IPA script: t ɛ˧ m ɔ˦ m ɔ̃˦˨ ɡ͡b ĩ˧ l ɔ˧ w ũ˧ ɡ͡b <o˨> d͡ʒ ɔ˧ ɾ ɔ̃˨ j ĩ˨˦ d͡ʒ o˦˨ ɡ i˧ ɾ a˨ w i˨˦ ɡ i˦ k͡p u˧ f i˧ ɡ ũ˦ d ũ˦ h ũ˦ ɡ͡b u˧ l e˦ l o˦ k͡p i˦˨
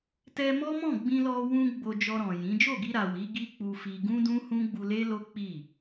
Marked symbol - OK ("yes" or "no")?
no